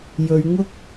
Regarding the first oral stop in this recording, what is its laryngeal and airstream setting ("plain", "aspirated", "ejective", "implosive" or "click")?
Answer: plain